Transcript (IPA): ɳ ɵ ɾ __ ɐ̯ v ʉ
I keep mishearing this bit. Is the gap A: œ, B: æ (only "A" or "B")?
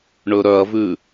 A